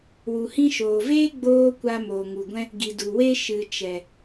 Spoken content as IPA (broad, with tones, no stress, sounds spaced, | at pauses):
w u˨ h ĩ˧ ʃ oː˨ v eː˦ ɡ͡b oː˦ kʷ a˧ m oː˨ ŋ u˨ ɡʷ ɛ̃˧ | ɡ i˨ d u˨ w e˦ ʃ ɨ˨ t͡ʃ ɛ˨